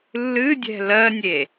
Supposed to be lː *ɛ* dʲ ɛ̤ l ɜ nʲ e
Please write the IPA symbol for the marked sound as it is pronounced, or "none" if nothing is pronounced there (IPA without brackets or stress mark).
ɨ